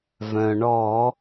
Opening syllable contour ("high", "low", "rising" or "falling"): low